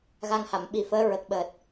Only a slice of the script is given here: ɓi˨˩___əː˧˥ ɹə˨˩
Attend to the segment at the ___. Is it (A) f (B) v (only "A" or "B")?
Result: A